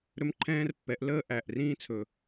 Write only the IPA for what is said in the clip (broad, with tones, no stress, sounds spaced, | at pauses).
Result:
ɾ ɵ˦ m ǃʰ ɛ̃ː˦ r pː ɛ˨˦ ʔ l əː˦ ʔ æ˨ ʔ r ĩː˦ t͡sʰ ɵ˨